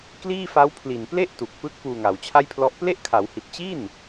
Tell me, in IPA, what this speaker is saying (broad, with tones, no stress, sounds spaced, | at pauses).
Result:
k l iː˥˩ f a˦˥ w pʰ l i˨˩ n p l e˥˩ ʔ t u˨˩ k̚ p ɯ˦˥ k̚ p uː˧ ŋ a˩˦ w t͡ɕʰ a˥˩ j pʰ l ɔ˦˥ ʔ p l e˥˩ ʔ kʰ a˩˦ w h i˨˩ t̚ t͡ɕ i˥˩ n